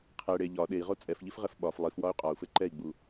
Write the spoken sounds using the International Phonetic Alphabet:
qʰ ɛ ɽ e ʎ ɒ ɗ e i̯ ʁ o t͡sʼ ɛ f ʎ i f ʁ ɛ f ɓ ɒ f lˠ i f w ɒ y̯ qʼ ɒ u̯ f ɘ ǃ ɛ i̯ ɡ͡b u

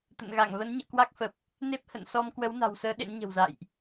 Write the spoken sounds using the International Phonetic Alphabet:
t̪ ə̰˧˨ n ɣ a˧˩ ŋ v ə˨˦ n ɲ ə̰ː˧˨ k w a˦˥ k̚ f ə˨˩ p̚ | n e˦˥ p̚ h ə̰˧˨ n s ɔ˧ m k w ə˨˦ w n a̤˨˩ w s əː˨˦ ɗ ḛ˧˥ n ɲ ə̤˨˩ w z a̰ː˧˨ j ʔ

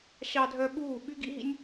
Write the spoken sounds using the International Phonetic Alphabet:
ɕ ɑ˧ dʱ œ˧ ɓ uː˦˨ ɓ y˦ ɡ ḭ˦ ɦ ḭ˦ nʲ

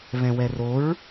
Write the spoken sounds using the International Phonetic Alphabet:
β ɛ̃ w ɛ r o ɹ

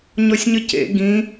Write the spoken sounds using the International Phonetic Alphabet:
ɲ ɔ sʲ ɲ ə c ḛ ɡ ĩ

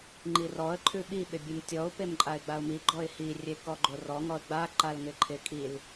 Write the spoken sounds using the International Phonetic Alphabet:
ŋ͡ǃ i r ɔ ə̯ ǃʰ ʉ ɓ i ɓ ɪ bʲ ʉ m tʲ ɔ ʊ̯ p e m ǃʼ a ɪ̯ ɡ͡b a ʊ̯ m i ɡ͡ǃ ɔ ɪ̯ h i rʲ e k ɔ ɡ͡ǃ o r ɔ ŋ ɔ ə̯ ɡ͡b a ǃ a l ŋ ɪ ǃʰ ɪ kʼ i l

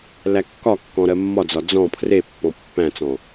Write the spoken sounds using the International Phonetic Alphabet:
l æ kː ɒ kː ɔ̃ ɾ ɜ mː ɒ d͡z ɒ d͡z ɔ̃ pʰ r e pː ɔ̃ pː æ̃ t͡s ɔ̃

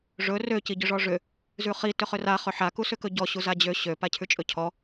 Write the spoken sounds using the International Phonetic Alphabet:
ʐ ɵ r ø c i ɟ ʏ ʐ ɔ ʐ ʏ | z ʉ χ i t ʏ χ ʏ r a χ ʏ ħ a k u s ʏ k ɵ ɟ ɔ ɕ u z a d͡ʑ ø ɕ ø p a cʰ ʉ t͡ʃʼ ɵ cʰ ɔ

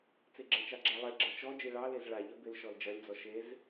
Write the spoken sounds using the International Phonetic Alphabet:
t͡s e ɡ͡ǁ ɐ t͡ʃ ɑ ɡ͡ǁ a lˠ e ɡ͡ǁ ɐ t͡ʃ ɔ d͡ʒ e ɭ ɑ l e z ɭ a ʎ ɐ b ɪ l ʃ ɔ l d͡ʒ ɐ lʲ d͡z ɔ ʃ e z

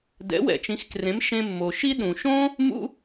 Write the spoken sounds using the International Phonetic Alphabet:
d ɛ̰˩˥ w ɛ̰˩ t͡ʃ ĩ˩˥ x k r ẽ˩˥ m ʃ ẽ˧ mː o˩ ʃ i˥ ɗ ũ˩ ʃ õ˥ | m ṵ˥

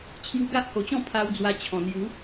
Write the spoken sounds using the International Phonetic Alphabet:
t͡ɕʰ j u˧ ɡ a˦ ʔ h o˨˩ t͡ɕ ɔ̃˥˧ pʰ a˧ w d͡z w a˧ t͡ɕʰ ɔ̃˨˩ n̪ j u˨˦

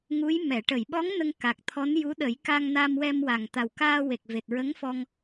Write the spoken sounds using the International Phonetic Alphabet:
ŋ u˧˥ j m ɛ˨˩˨ ʈ ə˨˩˨ j ɓ ɔ˧˥ ŋ n ə˧ ŋ k a˨˩ k̚ t̪ʰ ɔ˧˥ n j u˧˥ ɗ ə˨˩˦ j k a˧ ŋ n a˧ m w ɛ˧ m w a˨˩ ŋ t̪ a˨˩ w k aː˧ w e˨˩ k̚ v e˨˩ t̚ ɹ ə˧˥ ŋ f ɔ˧ ŋ

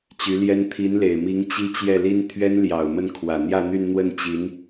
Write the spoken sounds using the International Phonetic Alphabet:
t͡ɕ y˧˥ l j ɛ˥ n t̪ʰ i˧˥ n l e˨˩ ɪ̯ m i˧˥ ŋ t͡ɕ i˥ t͡ɕ j ɛ˥˩ l i˥ n t̪ʰ ɥ ɛ˥ n l j ɑ˨˩ ʊ̯ m ə˥˩ n kʰ w ä˨˩ n̪ j ä˥˧ n̪ y˥˧ n n̪ w ə˥˩ n t͡ɕ i˧˥ n

